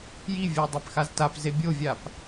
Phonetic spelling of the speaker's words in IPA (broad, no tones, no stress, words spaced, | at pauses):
jivʲɘj dˤɛpxaztap zebʲovʲap